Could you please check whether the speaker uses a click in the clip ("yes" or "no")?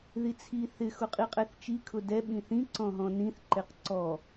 yes